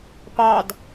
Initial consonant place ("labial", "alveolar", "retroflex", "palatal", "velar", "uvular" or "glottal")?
labial